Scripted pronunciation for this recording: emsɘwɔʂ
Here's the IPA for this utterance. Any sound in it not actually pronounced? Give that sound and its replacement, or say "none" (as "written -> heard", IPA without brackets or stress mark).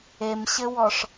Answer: s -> ɕ